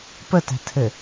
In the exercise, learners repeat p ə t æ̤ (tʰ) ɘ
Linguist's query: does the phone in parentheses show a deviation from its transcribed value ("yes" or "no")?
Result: no